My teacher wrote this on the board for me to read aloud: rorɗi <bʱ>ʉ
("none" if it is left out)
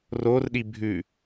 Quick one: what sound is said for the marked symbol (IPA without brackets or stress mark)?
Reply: bʱ